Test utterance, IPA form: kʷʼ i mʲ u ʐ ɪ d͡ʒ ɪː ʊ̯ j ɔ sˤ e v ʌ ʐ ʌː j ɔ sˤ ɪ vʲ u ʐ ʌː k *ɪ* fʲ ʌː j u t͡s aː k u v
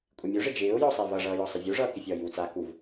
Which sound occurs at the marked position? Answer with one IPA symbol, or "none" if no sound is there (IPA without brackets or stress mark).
ɪ